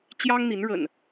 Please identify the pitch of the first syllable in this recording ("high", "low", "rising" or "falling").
high